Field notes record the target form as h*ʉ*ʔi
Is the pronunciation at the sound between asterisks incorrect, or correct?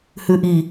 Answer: correct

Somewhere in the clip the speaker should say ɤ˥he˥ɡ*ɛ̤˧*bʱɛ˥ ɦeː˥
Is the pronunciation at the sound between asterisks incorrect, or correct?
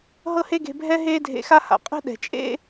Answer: incorrect: e̤˧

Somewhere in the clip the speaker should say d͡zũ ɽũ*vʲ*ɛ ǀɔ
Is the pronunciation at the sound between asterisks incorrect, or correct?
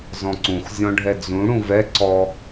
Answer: incorrect: v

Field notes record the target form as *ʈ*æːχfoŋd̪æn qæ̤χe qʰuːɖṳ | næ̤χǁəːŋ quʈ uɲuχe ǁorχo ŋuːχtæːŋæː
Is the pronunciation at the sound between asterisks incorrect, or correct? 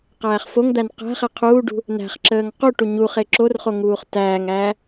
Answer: incorrect: q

